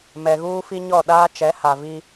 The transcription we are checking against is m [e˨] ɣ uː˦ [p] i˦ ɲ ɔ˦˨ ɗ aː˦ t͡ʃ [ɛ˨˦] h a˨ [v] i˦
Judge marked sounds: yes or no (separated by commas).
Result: no, no, yes, yes